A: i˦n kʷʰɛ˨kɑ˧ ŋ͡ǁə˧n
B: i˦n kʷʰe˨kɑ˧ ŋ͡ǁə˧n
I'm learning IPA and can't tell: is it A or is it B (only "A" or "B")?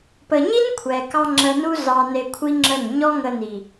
A